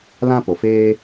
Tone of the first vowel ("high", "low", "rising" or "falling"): high